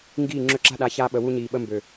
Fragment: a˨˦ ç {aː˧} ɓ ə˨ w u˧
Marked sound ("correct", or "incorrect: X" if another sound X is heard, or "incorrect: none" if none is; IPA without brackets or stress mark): correct